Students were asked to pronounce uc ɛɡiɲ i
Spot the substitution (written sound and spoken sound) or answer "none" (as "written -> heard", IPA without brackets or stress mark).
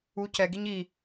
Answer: none